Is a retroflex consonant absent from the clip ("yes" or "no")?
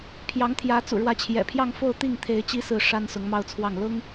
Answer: no